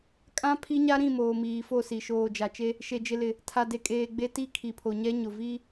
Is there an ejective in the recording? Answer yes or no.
yes